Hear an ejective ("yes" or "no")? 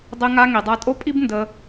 yes